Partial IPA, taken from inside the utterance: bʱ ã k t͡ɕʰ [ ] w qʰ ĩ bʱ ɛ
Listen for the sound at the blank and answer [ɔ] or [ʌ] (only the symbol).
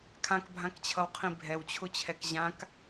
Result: ʌ